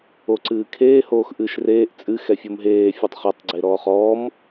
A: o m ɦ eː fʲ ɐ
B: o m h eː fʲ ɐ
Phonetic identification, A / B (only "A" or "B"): A